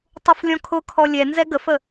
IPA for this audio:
tˤ ʊ f lʲ ɔ̃ kʰ ʊ kʰ ɔ lʲ ɛ n z ɛ ɡ ə f ə

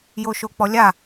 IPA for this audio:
j o ʃ o k͡p ɔ lʲ a

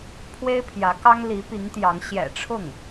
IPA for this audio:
pʰ w e˥ ɪ̯ pʰ j ä˧˥ k ɑ˥ ŋ l i˧˥ p i˧˥ ŋ t̪ j ɑ˧˥ ŋ ɕ j ɛ̰˨˩ ʈ͡ʂʰ ʊ˥˩ ŋ

